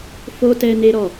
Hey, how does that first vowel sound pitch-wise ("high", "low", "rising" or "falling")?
high